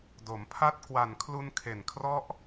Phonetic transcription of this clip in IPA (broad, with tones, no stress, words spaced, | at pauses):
do˩˦mpʰa˥˩t̚ kwa˨˩nkʰlu˧n kʰe˨˩nkʰrɔ˦˥ʔ